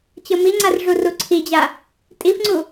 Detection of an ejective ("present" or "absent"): present